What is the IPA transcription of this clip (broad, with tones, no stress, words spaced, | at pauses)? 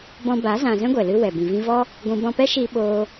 bɔ̃˧ba˨˦ zã˧ zɛ̃˦ɡʷɛ˨lɨ˧ wɛ˨ bĩ˨vĩ˧vɔ˦ | ɡʷũ˦ bɔ̃˧pɛ˦ʃiː˧ ɓoː˦